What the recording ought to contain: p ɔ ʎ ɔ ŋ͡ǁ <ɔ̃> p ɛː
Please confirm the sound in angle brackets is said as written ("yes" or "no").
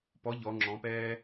yes